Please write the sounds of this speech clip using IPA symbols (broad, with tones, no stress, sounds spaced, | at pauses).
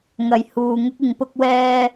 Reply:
ŋ ɐ˨ j h uː˨ ŋ ʊ˥ k̚ ɪ˨˧ ŋ p ʊ˥ k̚ w ɛː˥